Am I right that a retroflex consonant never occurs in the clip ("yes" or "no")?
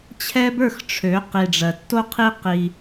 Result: no